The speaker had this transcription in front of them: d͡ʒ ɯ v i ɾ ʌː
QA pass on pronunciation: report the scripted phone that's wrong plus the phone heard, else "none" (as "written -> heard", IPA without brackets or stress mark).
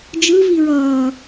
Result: ɾ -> ɹ